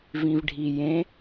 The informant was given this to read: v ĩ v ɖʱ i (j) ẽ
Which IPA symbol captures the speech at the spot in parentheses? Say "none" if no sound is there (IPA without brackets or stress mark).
j